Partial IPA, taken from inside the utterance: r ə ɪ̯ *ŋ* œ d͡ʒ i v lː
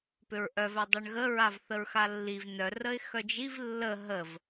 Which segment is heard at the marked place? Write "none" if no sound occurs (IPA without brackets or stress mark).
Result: x